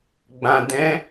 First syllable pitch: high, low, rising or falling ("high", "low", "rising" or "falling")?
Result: low